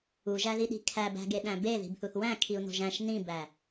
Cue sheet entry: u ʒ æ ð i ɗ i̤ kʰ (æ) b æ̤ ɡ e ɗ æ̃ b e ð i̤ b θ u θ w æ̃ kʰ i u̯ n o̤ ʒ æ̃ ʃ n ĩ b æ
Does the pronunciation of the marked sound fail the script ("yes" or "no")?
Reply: no